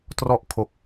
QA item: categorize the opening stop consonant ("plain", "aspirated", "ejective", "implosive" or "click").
plain